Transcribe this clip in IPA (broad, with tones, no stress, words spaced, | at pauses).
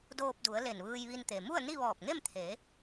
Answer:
doː˧p̚du˩˧ə̯ le˧˩nʋɯː˧jʋi˧nt̪e˩ mu˥˨ə̯ni˥˨ʋɔː˧˩p̚ŋe˥˨m t̪ʰe˩˧